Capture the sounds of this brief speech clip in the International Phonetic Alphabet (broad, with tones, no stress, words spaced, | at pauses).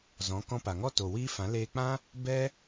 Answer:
zɔ̃˨˦ kɔ̃˧pa˨ŋɔ˦ to˨wiː˦fã˨˦ leː˧k͡pã˦ | bɛ˦